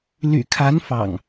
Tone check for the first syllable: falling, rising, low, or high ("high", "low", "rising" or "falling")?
low